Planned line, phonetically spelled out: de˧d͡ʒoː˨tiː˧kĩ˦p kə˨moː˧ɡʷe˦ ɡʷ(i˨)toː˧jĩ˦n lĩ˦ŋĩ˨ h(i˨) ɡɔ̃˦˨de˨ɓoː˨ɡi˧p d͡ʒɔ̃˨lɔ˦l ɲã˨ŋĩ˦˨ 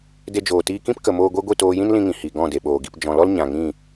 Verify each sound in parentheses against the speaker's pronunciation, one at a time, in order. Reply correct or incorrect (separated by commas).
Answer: incorrect, correct